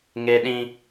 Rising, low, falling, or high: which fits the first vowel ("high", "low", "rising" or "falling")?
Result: high